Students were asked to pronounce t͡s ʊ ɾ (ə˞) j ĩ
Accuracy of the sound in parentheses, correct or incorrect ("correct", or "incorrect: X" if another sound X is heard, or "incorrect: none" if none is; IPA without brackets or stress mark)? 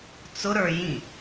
correct